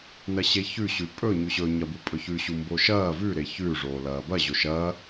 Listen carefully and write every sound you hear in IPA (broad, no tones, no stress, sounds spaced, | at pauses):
n ɐ ɕ e ç ʉ ɕ ʉ pʼ ɵ ɲ ʉ ɕ ɵ ɲ ɐ b u pʼ ɵ ç ʉ ɕ u m b o ʃ ɐː v ʉ ɾ e ç ʉ ʐ oː l ɐː b ɐ ʑ o ʃ ɐː